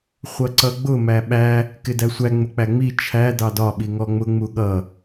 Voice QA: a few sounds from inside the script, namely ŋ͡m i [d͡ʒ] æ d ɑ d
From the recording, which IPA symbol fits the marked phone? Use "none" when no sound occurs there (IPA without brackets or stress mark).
t͡ʃʰ